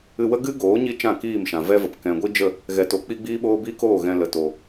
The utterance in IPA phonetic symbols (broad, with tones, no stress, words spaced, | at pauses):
ɨ˧wə˦ ɡɨ˦ɡoː˨˦ ɲi˦t͡ʃã˦˨kiː˦˨mʃã˨ vɛ˦və˨p kɛ̃˨ɡʷi˦d͡ʒə˦˨ | ɣɛ˨˦to˨˦ k͡pi˦ɡ͡biː˦ɓoː˦ bi˦ko˦˨ ɣɛ̃˧lə˨to˨